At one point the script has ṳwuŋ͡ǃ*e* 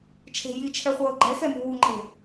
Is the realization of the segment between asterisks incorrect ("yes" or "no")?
yes